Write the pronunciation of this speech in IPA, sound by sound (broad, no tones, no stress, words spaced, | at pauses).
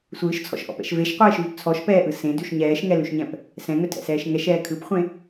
sʷɯːʃt͡sʰɔ̰ʃʔɔ̰pɛ̰ʃ veʃqʷɛːʃvʉp t͡sʰɔʃpɛːʔɯ sẽdʉʃ ɲɛːʃŋɛlʉʃɲɛ̃p | sɛ̃ŋɵtʰɛ̰sɛːʃ ŋɛʃɛː kʰɯpχʷẽ